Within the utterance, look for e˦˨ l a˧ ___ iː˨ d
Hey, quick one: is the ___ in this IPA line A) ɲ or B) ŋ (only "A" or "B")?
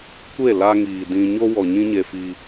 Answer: B